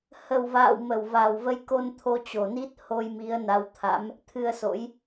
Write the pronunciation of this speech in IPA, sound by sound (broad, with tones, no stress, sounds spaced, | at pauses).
h ə˨˩ w v a̰ː˧˨ w m ə˨˩ w v a˨˩ w v ə˧ j k o˧ n t̪ʰ o˧ t͡ɕ o˨˩ n i˦˥ t̚ h o˧ j m i˨˦ ə̯ n a˨˦ w t̪ʰ a̰˧˥ m | t̪ʰ ɨ˧ ə̯ s o̰˧˥ j